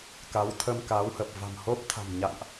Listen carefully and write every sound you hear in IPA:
k a˨˦ w t̪ʰ ə˧ m k aː˨˦ w h əː˨˩ p̚ v a̤˨˩ m h o˦˥ p̚ t̪ʰ a̤˨˩ m ɲ a̰˧˨ ŋ ʔ

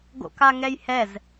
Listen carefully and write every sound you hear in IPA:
ɡ o̰ k a ŋ ɛ j h ɛ z

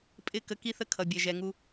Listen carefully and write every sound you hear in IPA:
pʼ ɪ˧ k ə˧ k i˥ θ ə˥ kʰ ʌ˩ bʲ ɛ˩ ʒ ɛ˩ ŋ u˧

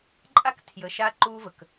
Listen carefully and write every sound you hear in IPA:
ǃʼ a˥ k tʰ j ə˩˧ ʃ a˧˥ ǃ uː˧ v ə˩ k

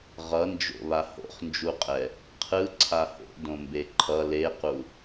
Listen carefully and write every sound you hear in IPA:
ʁ ʌ n d͡ʒ o̰ β a h o̰ χ n d͡ʒ u qʼ ɛ | qʰ ɯ ǀʰ a h o̰ d õ m b e ǃʰ ʌ l e q u

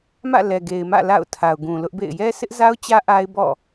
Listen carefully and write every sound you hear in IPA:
m ä̰˦˨ l ɛ˨ ɡ e˨ ɪ̯ m ä̰˦˨ l a̰˦˨ ʊ̯ tʰ a˨ ʊ̯ ɡ ũ˨ l ʊ˦ ʔ b ḛ˦˨ ɪ̯ j ɛ˦ sʰ ɪ˦ ʔ z a˦ ʊ̯ t͡ɕ ä˦ ʔ a˦ ɪ̯ b ɔ̰˦˨

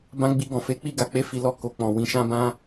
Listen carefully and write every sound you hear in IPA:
b ã˧ ɡ͡b i˧ ɡ ɔ̃˨ f e˨˦ k͡p i˧ ɡ a˨ k͡p e˨˦ f i˧ l ɔ˧ k o˨ k͡p ɔ̃˨ w ĩ˨˦ ʃ ã˦ b ã˦

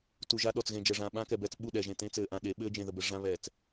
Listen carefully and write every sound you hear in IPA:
t u˨ ʒ a˦ ɗ ɔ˨ t͡s ɣ ẽ˨ d͡ʒ ɛ˨ ʐ ãː˨ ɓ ãː˦ k ɛ˨ b ɛː˦ t͡s ɓ u˦˨ ɗ ɛ˨ ʒ ẽ˨ t ẽ˦ t͡s ɘː˨ ʔ ã˨ ɗ e˨˦ ɓ ɘː˦ d͡ʒ ẽ˨ ð ə˨ b ɘ˨ ʐ ã˦ β ɛː˨ t͡s

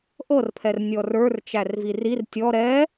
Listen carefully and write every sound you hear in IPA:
ʔ ɤ r pʰ ɛ r nʲ ɔ r ə˞ r t͡ʃ æ r v i r i r tʲ ɔ ɾ ɛ

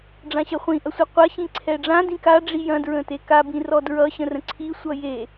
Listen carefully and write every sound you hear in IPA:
ɖ͡ʐ ã ɕ ɐ χʷ ĩ ʔ ɐ sʷ ɐ qʷ ɐ ɕ ĩ ǀʰ ɛ ɖ͡ʐ ã d ĩ k a ɖ͡ʐ i j ɐ̃ d ɹ ə̃ t e k a b ĩ r ɔ d ɹ ʌ ɕ ə̃ r ə̃ ǀʰ i sʷ ʌ j e

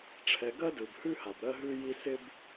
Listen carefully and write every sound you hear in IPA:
ʈ͡ʂʰ ɛ˨ ɡ ɜ˥ d ɯ˨ b h ʉ˥ h a˨ b ɾ ɜ˥ ɦ ʉ˥ j i˥ s ɪ˥ b

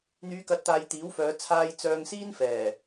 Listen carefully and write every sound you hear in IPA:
n̪ yː˨˧ k ɐ˨˥ t̚ t̪ aː˨ j t̪ iː˨˥ w f œː˨˧ t͡sʰ aː˧ j t͡s œː˧ ŋ s iː˥ n f ɛː˨˩

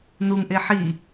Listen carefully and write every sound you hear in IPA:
n u ŋ ʔ e ħ i

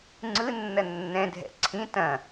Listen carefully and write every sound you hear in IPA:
ŋ͡ǀ ɯ nː ɐ nː ɛ̃ dʱ ɛ̰ ǀʰ ĩ t ɐ̃

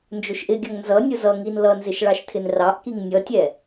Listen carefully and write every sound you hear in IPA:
n d͡ʒ ʊ ʃ ʔ ɪ ɡʲ ʌ ŋ n z ʌ nʲ ʊ z ʌ ŋ i n l ʌ n z ɪ ʃ ɭ ɑ ʃ tʰ ɪ n r ɑ ʔ k i ŋ nʲ ʌ tʲ ɛ

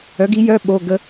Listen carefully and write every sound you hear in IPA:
œ˨˥ ɡ i˨˥ j œ˧˥˧ ɓ o˧˥˧ ɡ ə˥

